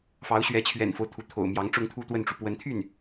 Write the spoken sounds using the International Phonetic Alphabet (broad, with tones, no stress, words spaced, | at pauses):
fɑ˧˥ʊ̯ɕɥɛ˧˥t͡ɕʰɥɛ̰˨˩nfo˦ʊ̯ t̪ʰu˧˥t̪ʰo̰˨˩ʊ̯mjɑ˧˥ŋʈ͡ʂʊ˥ŋ t̪ʰu˥˧t̪wə˥˩nʈ͡ʂu˩ pwə˧˥nt̪ʰy˥˩n